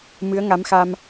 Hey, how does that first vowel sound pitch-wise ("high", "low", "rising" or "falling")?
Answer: rising